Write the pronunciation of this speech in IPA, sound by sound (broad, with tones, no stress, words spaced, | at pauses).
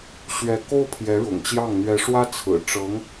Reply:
ɕɥɛ˧˥ko˥ʊ̯ pʰjɛ˧˥ɻʊ̰˨˩ŋt͡ɕjɑ˥˩ŋ n̪ɥɛ˧˥ʂwä˥ t͡sʰɹ̩˨˩ ʈ͡ʂɤ˧˥ŋ